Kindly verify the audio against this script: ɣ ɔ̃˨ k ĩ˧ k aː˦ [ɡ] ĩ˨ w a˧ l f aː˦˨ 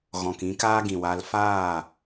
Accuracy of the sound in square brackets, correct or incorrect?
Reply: correct